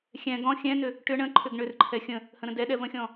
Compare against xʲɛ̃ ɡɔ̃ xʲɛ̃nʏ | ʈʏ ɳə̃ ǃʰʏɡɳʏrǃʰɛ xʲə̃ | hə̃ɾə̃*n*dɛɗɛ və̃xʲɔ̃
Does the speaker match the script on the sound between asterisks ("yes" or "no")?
no